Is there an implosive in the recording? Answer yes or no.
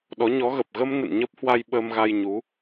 yes